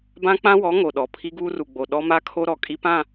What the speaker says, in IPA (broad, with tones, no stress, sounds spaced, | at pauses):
b ã˦ k͡p ã˦ w ɔ˨˦ ŋ o˨ ɗ ɔ˨ pʰ i˦ ɡ uː˦ r u˨ ɡ͡b o˨ ɗ ɔ˦ m a˦ kʰ o˦ ɾ ɔ˨ kʼ i˦ p ã˦˨